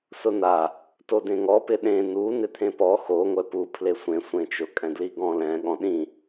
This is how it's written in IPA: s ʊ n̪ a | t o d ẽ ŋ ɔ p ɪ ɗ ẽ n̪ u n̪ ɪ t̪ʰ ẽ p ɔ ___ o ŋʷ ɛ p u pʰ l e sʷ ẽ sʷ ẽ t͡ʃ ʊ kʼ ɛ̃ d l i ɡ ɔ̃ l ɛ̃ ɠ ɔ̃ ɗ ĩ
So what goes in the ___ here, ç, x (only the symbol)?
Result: x